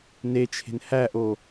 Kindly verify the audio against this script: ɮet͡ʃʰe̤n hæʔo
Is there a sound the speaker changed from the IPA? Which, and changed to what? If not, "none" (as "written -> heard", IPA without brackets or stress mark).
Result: ɮ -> n